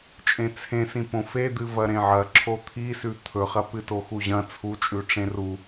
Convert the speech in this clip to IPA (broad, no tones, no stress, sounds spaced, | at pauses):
t͡ʃʼ ẽ t͡sʰ ẽ s ĩ p õ f e d̪ ɨ v ɐ ɾ ẽ ʕ ɐ ǁʰ o t̪ʰ i s ʉ t̪ʰ ɵ χ ɐ p ɨ t o x u ʑ ɐ̃ t͡sʰ u t͡ʃʼ ʉ ʈ͡ʂ ẽ r u